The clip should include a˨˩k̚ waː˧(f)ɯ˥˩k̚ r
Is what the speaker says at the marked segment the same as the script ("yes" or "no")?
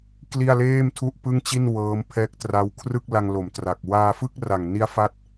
yes